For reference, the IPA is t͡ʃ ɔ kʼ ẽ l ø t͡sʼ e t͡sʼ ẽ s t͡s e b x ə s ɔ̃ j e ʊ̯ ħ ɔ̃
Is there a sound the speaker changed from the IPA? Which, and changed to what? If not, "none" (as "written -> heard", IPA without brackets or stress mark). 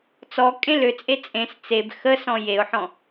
t͡ʃ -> t͡s